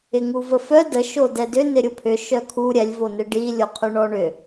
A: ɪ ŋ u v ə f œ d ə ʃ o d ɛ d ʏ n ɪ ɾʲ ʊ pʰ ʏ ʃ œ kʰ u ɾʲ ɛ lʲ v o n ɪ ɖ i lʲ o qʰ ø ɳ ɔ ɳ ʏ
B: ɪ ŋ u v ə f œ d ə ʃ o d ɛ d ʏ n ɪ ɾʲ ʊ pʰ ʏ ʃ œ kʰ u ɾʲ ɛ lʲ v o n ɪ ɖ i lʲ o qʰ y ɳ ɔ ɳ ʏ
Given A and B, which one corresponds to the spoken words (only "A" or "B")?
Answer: B